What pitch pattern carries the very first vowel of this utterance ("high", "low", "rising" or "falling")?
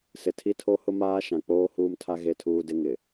low